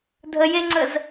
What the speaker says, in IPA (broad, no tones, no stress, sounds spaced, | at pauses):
dʱ ə j e ŋ͡ǀ ə z